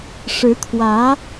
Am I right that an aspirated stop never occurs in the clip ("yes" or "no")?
no